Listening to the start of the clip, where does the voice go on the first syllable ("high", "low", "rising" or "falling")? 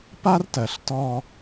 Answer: high